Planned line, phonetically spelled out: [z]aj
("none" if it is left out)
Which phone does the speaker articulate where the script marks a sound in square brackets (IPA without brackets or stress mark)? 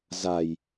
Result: z